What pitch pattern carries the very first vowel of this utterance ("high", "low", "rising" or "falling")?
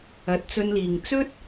low